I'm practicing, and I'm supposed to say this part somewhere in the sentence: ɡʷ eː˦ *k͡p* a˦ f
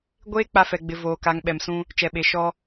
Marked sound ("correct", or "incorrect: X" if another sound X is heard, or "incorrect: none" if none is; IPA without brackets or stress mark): correct